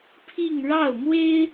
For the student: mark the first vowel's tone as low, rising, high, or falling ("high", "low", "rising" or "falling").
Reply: falling